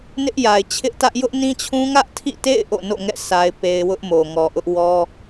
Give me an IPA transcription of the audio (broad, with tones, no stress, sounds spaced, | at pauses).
n ɪ˦ ʔ j a˨ ɪ̯ t͡ɕʰ ɪ˦ ʔ t ä˦ ʔ j ʊ˦ ʔ n ĩ˦ t͡ɕʰ ũ˦ ŋ ä˦ ʔ tʰ ḭ˦˨ t ḛ˦˨ ɪ̯ ʔ o̰˦˨ n o̰˦˨ ŋ ɛ̰˦˨ sʰ a˦ ɪ̯ p e˦ ɪ̯ w ʊ˦ ʔ m o˨ ŋ ɔ˨ ʔ ʊ˦ ʔ w ɔ˦